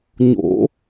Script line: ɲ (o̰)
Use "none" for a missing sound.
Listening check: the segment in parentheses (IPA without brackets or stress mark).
o̰